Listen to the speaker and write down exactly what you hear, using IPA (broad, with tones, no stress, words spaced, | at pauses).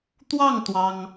t̪wɑ˥˨ŋ t̪wɑ˦ŋ